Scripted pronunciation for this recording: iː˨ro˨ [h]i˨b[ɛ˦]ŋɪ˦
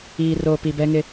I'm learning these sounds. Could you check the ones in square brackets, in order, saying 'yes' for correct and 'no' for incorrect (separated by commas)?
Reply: no, yes